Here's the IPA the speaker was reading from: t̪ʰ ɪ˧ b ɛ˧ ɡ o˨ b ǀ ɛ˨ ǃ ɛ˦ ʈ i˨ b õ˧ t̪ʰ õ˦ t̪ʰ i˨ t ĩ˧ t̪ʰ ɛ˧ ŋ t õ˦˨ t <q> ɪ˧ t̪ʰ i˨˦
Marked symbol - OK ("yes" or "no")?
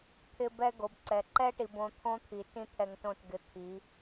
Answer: no